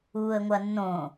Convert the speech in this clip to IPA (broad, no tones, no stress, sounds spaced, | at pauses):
uː ə̯ ŋʷ ɐ nː õ